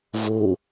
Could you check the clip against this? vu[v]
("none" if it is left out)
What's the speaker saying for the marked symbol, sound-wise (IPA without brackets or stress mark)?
none